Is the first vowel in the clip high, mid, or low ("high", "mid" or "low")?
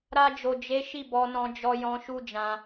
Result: low